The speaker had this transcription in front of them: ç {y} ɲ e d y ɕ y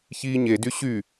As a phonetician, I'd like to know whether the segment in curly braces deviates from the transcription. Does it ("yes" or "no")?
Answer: yes